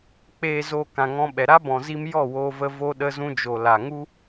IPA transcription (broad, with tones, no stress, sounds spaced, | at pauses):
k͡p eː˨ z o˨ k ã˨ ŋ ɔ̃˧ ɓ ɛ˨ ɾ a˦ b ɔ̃˨ z i˧ m j ɔ˦˨ w oː˧ v ə˧ v o˧ ɗ ə˧ z ũ˧ d͡ʒ o˨ l a˨ ŋ u˦